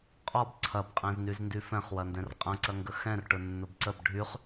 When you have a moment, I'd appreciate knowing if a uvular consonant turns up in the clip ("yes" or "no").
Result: yes